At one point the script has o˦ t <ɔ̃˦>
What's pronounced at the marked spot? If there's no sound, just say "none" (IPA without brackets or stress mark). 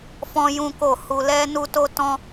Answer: ɔ̃˦